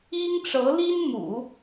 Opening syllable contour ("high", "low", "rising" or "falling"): high